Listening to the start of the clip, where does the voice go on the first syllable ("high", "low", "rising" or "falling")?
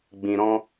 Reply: low